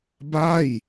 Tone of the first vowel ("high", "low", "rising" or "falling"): falling